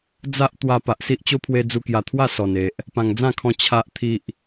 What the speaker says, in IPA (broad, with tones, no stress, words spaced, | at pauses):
d͡za˦ʔ t̪wa˧ pa˨ʔsi˦ʔt͡ɕo˦pʰwe˧ d͡zu˧kja˨˩t̪ʰwa˥˧ sɔ˨˩ne˨ʔ | pã˨˩ŋd͡zã˥˧kʰɔ̃˧ t͡ɕʰa˨ʔt̪ʰi˨ʔ